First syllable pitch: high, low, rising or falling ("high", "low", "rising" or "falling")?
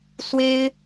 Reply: high